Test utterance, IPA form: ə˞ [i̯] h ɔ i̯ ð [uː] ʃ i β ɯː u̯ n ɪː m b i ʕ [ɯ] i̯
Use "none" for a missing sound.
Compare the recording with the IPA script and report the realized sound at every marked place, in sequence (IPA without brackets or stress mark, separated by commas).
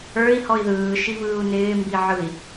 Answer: i̯, ɯː, ɯ